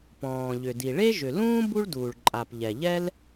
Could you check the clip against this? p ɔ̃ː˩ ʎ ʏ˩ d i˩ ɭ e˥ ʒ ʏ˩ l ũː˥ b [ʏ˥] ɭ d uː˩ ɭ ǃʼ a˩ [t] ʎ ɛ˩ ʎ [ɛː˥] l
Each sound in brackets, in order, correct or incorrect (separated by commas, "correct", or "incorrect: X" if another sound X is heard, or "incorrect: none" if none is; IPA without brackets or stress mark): incorrect: u˥, incorrect: p, incorrect: ɛ˥